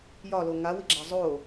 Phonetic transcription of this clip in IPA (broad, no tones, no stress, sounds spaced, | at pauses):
j ɒ l o ŋ a w i ɡ͡ǁ a zˤ o